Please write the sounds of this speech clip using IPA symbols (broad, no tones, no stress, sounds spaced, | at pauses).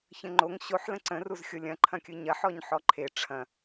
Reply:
ç ə̃ ŋ͡ǃ o ŋ ɕ o ħ l ə̃ ǀ ə̃ r u z xʲ o lʲ ɐ̃ ǃʰ ɐ̃ kʲ ɯ ɲ ɐ ħ ɔ ɲ ħ ɔ ǃʰ e ʈ͡ʂʰ ɐ̃